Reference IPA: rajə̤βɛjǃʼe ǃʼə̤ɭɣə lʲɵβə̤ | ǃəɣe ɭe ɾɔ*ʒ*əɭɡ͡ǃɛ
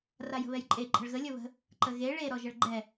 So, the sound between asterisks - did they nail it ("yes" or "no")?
yes